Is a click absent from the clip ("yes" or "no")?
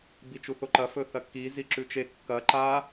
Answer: no